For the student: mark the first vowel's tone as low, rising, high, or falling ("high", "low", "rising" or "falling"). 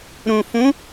low